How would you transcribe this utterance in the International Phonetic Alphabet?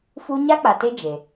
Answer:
f u˦ ɲ a˦ k͡p a˨ t e˦ d͡ʒ e˨

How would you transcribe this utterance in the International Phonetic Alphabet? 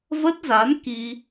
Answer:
v ə˦˥ t̚ z a˨˦ n k i˧

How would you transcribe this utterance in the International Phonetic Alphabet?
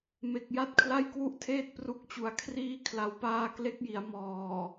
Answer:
m e˨˩ k̚ j a˥˩ t̚ kʰ l a˥˩ j k w u˥˩ ʔ tʰ eː˥˩ t̚ p r u˥˩ k̚ t͡ɕ u˧ a̯ kʰ r iː˧ kʰ l a˩˦ w p aː˧ k l e˦˥ k̚ j i˩˦ a̯ m ɔː˨˩

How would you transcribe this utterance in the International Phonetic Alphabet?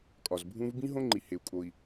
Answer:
kʼ ɒ˨ z bʱ ũ˦ v b ĩ˦ ɦ õ˦ ŋ͡ǃ i˨ h e˨ u̯ kʼ o˨ i̯

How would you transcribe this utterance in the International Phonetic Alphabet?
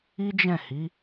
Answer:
i˦ d͡ʒ ɛ̃˦˨ h i˨˦

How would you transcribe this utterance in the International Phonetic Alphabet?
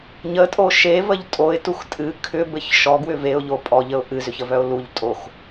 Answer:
ɲ ə tʼ o ʃ e v ə ʎ tʼ o ɪ̯ t u x tʼ ɨ kʰ ʏ b ɘ ç ʃ ɔ ɡ w ʏ v e ʊ̯ ʎ o pʼ ɔ ʎ ə ʊ̯ ʔ ɨ z ʏ ç ə v œ ʊ̯ l u ʎ tʼ o x

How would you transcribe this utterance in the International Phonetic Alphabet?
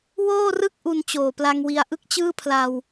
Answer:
w oː˥˩ r ɯ˥˩ k̚ ʔ u˧ n t͡ɕ oː˨˩ p l a˧ ŋ w i˧ a̯ ʔ ɯ˥˩ k̚ t͡ɕ ɯː˥˩ pʰ l a˧ w

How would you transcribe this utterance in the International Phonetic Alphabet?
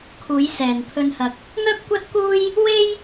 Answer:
kʰ uː˨˧ j s ɛː˨ n pʰ ɵ˧ n h ɐ˧ k̚ | ŋ œː˥ p̚ kʷ ɐ˥ t̚ k uː˥ j | w e˥ j

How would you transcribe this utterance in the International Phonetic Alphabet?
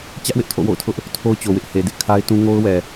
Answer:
t͡ɕ ä˦ ʔ w ɪ˦ ʔ tʰ o̰˦˨ w o̰˦˨ ʊ̯ tʰ ʊ˦ ʔ | tʰ o˦ ʊ̯ t͡ɕ o˨ w ɪ˦ ʔ h e˨ d ɪ˦ ʔ kʰ a˦ ɪ̯ t ũ˦ ŋ o˦ ʊ̯ w ɛ˨

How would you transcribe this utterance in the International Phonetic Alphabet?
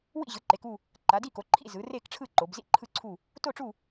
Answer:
w ḭ˦˨ ʑ ɯ˩˧ ǃ e˩˧ k u˦˨ | ǃ a˩˧ d i˦˨ k o˩˧ ǃʰ ḭ˦˨ z ɯ˩˧ r e˦˨ k ʈ͡ʂʰ ɯ˦˨ ǃ o˩˧ b z ḭ˦˨ ǃʰ ɯ˦˨ ǀʰ u˦˨ | t o˦˨ ʈ͡ʂ u˦˨

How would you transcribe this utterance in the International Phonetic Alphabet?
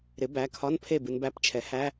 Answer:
ɾ ɪ˩˥ b æ˩˧˩ kʰ ɒ˧˥˧ n pʰ e˥˩ b ɨ˧ n b æ˧˥˧ p t͡ʃʰ ɛ˩˥ h æ˧˥˧

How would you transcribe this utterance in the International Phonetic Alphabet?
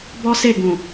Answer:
b ɔ˦ s e˦˨ ɡ ũ˨

